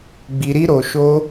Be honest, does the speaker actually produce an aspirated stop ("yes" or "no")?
no